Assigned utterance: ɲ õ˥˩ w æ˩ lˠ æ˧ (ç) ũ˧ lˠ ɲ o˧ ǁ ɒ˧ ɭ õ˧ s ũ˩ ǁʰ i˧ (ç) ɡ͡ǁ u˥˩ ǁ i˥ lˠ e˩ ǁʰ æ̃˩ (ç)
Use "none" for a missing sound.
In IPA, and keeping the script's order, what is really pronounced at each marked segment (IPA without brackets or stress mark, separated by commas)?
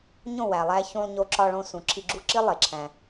ç, none, none